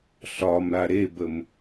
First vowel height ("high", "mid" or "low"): low